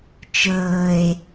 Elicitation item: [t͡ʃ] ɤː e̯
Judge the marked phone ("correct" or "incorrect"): correct